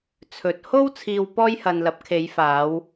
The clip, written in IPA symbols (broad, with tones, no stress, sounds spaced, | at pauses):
t͡sʰ ɵ˨ t̚ h o˥ w t͡sʰ iː˧ w p ɔː˥ j h ɐ˧ n l ɐ˨˥ p̚ kʰ e˨˧ j f aː˨˧ w